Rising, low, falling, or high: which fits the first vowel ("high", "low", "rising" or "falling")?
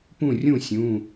falling